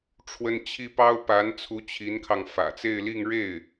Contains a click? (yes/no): no